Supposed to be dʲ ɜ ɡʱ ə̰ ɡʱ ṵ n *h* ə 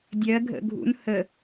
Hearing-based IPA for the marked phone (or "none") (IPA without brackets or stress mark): h